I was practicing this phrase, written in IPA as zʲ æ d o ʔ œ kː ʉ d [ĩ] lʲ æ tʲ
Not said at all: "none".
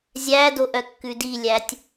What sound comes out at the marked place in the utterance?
i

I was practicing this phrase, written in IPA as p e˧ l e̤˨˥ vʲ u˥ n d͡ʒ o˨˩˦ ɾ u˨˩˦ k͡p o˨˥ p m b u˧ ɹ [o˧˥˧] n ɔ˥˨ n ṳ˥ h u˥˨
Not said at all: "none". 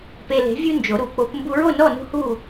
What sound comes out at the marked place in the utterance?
o˥˨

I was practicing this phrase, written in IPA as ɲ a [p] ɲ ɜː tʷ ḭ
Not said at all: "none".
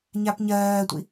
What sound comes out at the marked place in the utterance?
p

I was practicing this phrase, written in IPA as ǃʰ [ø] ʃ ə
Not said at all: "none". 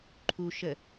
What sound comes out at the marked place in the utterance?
u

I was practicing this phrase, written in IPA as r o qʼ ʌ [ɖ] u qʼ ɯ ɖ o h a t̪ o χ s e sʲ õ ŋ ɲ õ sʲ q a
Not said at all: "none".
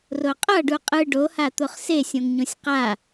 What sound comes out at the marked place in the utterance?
ɖ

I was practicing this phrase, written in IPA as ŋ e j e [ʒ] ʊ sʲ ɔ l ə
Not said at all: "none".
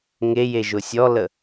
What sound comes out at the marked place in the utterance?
ʒ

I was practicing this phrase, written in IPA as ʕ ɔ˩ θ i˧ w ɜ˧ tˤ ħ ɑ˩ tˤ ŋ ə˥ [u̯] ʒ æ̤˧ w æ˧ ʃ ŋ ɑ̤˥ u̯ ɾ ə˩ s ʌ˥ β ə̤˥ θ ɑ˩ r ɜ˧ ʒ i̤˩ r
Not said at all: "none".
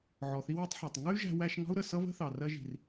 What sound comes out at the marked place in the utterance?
y̯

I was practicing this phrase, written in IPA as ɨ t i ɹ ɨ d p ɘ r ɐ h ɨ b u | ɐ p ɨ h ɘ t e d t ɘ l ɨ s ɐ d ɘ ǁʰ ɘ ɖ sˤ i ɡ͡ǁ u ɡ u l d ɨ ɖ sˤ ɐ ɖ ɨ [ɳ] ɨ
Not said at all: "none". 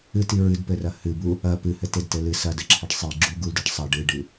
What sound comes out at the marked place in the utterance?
ɖ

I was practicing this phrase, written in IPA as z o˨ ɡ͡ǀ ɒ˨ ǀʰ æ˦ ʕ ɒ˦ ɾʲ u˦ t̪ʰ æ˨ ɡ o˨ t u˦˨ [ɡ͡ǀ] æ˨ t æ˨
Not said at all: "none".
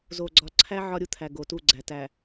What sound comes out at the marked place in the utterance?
ɡ͡ǀ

